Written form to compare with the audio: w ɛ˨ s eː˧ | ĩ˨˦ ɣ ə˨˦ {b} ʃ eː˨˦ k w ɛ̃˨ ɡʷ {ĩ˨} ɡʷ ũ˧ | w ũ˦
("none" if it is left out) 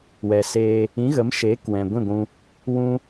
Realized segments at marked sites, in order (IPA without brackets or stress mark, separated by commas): m, ĩ˦˨